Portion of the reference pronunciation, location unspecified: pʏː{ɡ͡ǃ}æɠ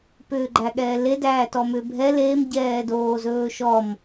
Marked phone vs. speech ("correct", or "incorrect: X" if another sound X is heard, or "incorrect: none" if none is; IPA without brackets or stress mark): correct